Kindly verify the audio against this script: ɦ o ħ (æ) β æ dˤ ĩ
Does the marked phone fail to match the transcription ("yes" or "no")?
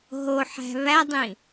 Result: yes